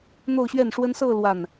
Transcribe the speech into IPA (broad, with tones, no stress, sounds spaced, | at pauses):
n̪ o˥˧ ʊ̯ ɕ ɥ ɛ˥˩ n ʂ w ə˥ n s ɤ˥˧ l w a˥˩ n